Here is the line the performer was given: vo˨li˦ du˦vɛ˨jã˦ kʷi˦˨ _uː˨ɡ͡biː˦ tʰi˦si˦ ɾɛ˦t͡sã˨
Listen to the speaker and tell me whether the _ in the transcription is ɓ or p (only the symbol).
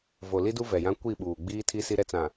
ɓ